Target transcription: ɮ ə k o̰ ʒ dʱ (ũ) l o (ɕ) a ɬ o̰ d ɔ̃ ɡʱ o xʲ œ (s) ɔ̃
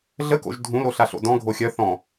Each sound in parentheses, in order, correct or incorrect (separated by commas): correct, incorrect, incorrect